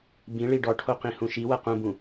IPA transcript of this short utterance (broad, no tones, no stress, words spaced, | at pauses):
bĩɭi ɖɔʈʰoqĩ hũʃi wɐqũbũ